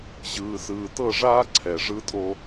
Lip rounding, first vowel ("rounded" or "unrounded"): unrounded